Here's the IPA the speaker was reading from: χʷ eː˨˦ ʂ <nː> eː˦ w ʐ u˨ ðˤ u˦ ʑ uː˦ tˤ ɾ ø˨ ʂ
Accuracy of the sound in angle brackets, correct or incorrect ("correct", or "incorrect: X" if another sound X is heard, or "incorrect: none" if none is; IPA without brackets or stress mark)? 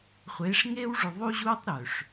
incorrect: ŋ